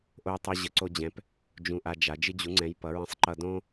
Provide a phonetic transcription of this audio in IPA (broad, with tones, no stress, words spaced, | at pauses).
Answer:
ʔo˦jtˤo˦ ʑə˨˥ǀo˦ d͡ʑɛ̃˨˥p | d͡ʒũ˦ʔa˦d͡ʒa˨˥ d͡ʒɨ˦d͡ʑu˨˥ŋ͡ǀɛ̃˨˥j pʌ˨˥ɹə̃˦sˤǃʌ˦ dõ˦